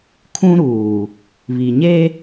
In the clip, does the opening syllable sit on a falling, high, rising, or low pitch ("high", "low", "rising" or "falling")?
high